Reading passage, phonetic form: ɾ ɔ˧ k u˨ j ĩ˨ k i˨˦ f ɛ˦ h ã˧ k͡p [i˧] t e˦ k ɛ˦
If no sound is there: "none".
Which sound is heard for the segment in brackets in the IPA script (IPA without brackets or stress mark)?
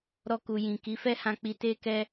i˧